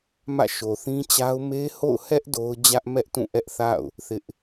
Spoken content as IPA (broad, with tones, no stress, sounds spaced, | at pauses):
m ä̰˦˨ ʃ o˨ θ ĩ˦ t͡ɕ a˦ ʊ̯ m e˦ h o̰˦˨ ʊ̯ h ɛ˦ ʔ d o˦ ʊ̯ d͡ʑ ä˦ ʔ m ɛ˦ ʔ t ũ˦˨ ʔ ɛ˦ ʔ θ a̰˦˨ ʊ̯ | θ ɪ˦ ʔ